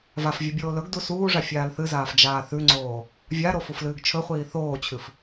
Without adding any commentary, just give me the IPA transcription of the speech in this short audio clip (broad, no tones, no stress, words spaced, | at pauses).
vafvʲɨ bʲoːlɵɡdu suːʐa fʲaːlθɨzaːf d͡ʒaːθʉŋ͡ǀoː | vʲaɾo fuflɨːɡt͡ʃʰɵχʷiː θoːt͡ɕʰɨf